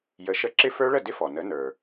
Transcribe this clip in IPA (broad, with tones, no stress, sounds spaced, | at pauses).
j ə˨˥ ʃ ə˦˥ ǁ ɪ˦˥ f ə˞˦˥ ɭ ə˥˩ d ɪ˦˥ f ɔ˩ n ə˨˥ n ə˞˩